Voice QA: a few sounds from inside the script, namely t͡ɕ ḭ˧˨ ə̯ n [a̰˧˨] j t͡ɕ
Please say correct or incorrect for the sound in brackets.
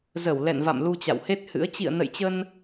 incorrect